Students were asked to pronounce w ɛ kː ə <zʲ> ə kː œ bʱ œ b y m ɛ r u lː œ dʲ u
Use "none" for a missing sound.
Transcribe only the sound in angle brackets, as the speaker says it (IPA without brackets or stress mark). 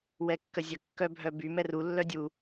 zʲ